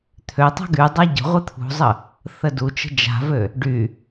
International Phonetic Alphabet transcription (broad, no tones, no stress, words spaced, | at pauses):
t̪ʰøtˤa̤ ɡy dˤaɟə̤ʁʷɨ t̪ʰṳzˤə | θədut͡ʃə̤ d͡ʒa̤vø | ɖy